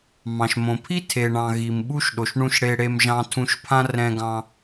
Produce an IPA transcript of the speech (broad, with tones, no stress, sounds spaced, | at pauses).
m ɑ̃˨ ʃ m õ˨ pʰ i˦ tʰ e˨ ɳ ɑ̃˨ ɣ i˨ m ɓ u˦ ʃ ɗ o˨ ʃ ɳ ũ˧ ʃ ɽ e˧ ɽ e˧ m ʒ ɑ̃˧ tʰ ũ˧ ʃ pʰ ã˦ r ɛ̃˧ ɡ ɑ̃˧